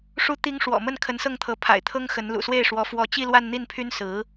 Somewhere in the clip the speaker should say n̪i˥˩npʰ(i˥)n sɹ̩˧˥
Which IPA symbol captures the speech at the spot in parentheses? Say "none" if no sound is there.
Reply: y˥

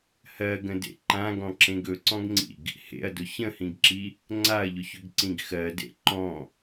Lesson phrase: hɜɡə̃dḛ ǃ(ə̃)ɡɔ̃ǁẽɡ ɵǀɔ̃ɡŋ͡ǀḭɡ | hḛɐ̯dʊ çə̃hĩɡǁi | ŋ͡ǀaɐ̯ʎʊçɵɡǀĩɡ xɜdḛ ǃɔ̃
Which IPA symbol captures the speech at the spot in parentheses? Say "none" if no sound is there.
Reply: ã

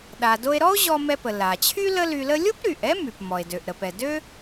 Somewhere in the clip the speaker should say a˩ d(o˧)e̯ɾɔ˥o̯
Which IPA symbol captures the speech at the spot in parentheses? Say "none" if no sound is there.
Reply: o˧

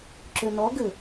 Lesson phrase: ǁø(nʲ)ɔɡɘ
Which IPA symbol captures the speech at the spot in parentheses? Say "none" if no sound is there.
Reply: n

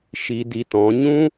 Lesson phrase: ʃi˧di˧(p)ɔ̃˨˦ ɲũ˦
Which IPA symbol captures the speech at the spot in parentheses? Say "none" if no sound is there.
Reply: t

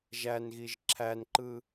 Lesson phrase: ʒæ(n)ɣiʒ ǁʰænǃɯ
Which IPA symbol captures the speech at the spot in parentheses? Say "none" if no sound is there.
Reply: n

